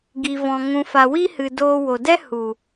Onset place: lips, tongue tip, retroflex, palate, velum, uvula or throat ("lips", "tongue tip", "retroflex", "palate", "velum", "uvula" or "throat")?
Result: velum